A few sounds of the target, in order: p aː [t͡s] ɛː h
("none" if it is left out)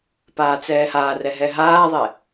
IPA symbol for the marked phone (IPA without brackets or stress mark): t͡s